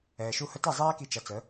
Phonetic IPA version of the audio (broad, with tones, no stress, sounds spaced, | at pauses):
ɛː˩ ʃ u˧ h ə˧ t ɛ˥˩ zˤ ɛː˥ k i˧ t͡ʃ ʌ˩˥ t͡s ə˩˥